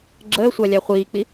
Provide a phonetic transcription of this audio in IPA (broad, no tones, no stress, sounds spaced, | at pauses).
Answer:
ɡ͡ǁ əː sʷ a lʲ ɑ χʷ iː k͡p i